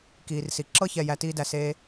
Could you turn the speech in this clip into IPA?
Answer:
k iː˨ r s i˨ ǁ ɤ˦ ç ɛ˨ j æ˧ t iː˦ d æ˧ s eː˧

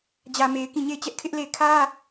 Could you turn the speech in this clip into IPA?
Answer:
d͡ʑ ä˨ m e˨ ɪ̯ k ĩ˦˨ ɲ e˦˨ ɪ̯ t͡ɕ ɛ˦ ʔ kʰ ɪ˦ ʔ l e˦˨ ɪ̯ kʰ ä˦

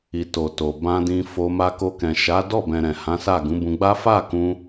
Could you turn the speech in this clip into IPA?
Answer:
i˨ t o˨ t o˨ b ã˧ d ĩ˧ f o˧ m a˧ k o˧ k ɛ̃˨ ʃ a˨˦ d ɔ˦˨ b ɛ̃˨ ɾ ɛ̃˨ h ã˨˦ s a˦˨ ɡ ũ˨˦ b ũ˧ ɡ͡b a˦ f a˦˨ k ũ˧

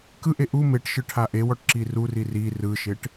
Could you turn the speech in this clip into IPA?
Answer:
k ɯ ʔ e ʔ u m e ʈ ʃ ɯ ʈʰ a ʔ e w ɔ ʈ ǁ i r u r i r i r ɯ ʃ e ʈ

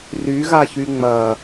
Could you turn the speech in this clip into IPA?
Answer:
r y ɣ a ç y ŋ͡m ɐ

